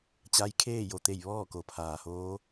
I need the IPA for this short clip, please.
t͡ɕ a˧˥ j kʰ eː˥˨ j o˩ t̪ e˧˩ j ʋ ɔː˥˨ k o˩ pʰ aː˩ h oː˧˥

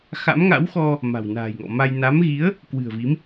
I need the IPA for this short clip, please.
x a̰˧˥ m ŋ a̰˧˥ w x ɔ˧ | m a̤˨˩ w n a̤ː˨˩ j ŋ ɔ̰˧˨ m a˧ j n a˨˦ m ɣ i˨˦ ə̯ | k w ɨ̤˨˩ ə̯ v i˨˦ m

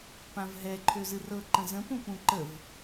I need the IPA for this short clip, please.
p ã v ɦ ɛ ǃʰ ø z ɨ r ɤ ǃ ə̃ z ə̃ p ũ p ũ ǃ ə v

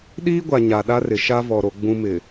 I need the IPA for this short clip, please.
ɗ iː˦ ɡʷ a˨ ɲ a˨ ɗ a˦ r ɪ˨ ʃ a˦ v ɔ˨ ɾ o˨ ɡ͡b ũ˨ m ɪ˨

